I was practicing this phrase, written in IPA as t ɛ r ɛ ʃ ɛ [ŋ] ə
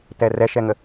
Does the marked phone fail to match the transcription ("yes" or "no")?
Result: no